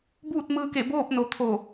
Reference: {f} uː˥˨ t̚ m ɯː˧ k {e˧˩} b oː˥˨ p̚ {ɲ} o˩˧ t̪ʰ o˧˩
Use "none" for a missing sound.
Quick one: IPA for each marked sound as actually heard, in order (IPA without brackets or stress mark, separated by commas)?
b, e˧˩, n